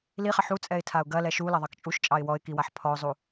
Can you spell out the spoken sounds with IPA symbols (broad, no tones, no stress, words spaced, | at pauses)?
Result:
liχɐ ħut͡sʼɛɪ̯ tʰaʊ̯ɡɐ lɛʃu lɐðˤɑkt͡ʃʼuʃt͡ʃʼɑɪ̯ wɔɪ̯kiwaħ pʰɔʊ̯zˤu